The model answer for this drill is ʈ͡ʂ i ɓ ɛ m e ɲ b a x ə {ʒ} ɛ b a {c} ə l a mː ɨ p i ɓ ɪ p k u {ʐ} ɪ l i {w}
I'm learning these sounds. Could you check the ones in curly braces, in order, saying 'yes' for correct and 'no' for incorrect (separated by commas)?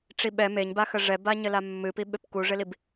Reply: no, no, yes, no